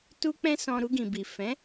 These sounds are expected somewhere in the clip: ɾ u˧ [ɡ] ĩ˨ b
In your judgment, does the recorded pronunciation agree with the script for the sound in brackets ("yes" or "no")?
yes